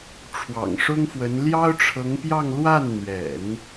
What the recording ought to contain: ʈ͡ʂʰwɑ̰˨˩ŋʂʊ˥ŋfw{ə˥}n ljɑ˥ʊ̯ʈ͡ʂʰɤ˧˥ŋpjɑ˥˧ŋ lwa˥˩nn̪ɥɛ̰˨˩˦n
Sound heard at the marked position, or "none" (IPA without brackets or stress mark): ə˧˥